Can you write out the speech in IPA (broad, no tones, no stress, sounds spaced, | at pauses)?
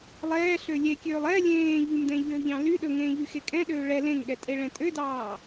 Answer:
lˠ ɛː ɬ ø lʲ e kʲ øː lˠ ɛ lʲ ẽː ʎ y m d ɛ̃ ʎ øː ʎ ɑ̃ l y ɗ ɵ ŋ ẽː ʎ y x e kʼ ɛ̃ ɗ øː ɭ ɛ l ẽ ŋ ɠ ɛ tʼ e ɭ ɛ̃ tʼ ø d ɑː